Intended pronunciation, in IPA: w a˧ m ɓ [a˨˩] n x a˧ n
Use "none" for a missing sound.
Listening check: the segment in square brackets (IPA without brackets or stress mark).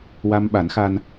a˨˩˦